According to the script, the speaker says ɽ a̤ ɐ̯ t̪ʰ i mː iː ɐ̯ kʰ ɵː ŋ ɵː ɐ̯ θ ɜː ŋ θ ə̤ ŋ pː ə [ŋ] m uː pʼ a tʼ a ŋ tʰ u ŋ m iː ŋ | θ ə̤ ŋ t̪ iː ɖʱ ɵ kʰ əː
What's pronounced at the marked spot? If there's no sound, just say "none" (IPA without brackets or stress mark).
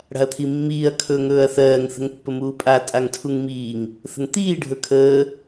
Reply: none